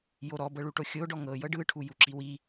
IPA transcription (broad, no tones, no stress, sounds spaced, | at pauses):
j o ɾ ɔ b ɤ ɭ u ʈ o xʲ o ɖ ɔ ŋ ɤ j ɤ ɖ ɯ ʈʰ u j u ǁ i w i